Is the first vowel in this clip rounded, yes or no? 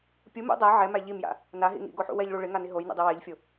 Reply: yes